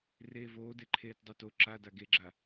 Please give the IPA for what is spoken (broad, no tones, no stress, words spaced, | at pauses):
reːvoːdeǃʰeːt dˤuto ǁada ɡeɡ͡ǁa